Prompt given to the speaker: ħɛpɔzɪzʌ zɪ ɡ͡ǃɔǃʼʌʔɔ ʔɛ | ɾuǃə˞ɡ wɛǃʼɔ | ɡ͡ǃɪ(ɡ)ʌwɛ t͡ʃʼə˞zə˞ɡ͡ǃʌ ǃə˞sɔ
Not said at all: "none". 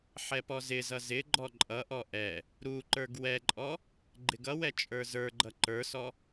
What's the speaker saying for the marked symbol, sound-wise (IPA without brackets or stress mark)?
ɡ